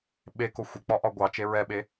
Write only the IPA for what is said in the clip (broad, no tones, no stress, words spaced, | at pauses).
ɓeko xʷɪk͡pɒʔɒ ɡʷɑt͡ʃe ɹɛɓe